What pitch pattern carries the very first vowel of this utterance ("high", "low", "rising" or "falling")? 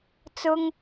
high